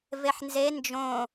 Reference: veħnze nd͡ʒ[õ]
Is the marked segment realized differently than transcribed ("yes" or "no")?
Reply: no